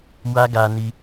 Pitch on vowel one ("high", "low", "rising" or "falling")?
high